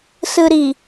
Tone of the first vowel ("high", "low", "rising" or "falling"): low